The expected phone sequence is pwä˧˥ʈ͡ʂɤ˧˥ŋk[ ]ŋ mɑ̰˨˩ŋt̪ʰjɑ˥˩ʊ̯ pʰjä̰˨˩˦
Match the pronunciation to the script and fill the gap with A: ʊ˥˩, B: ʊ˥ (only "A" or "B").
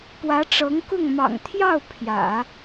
A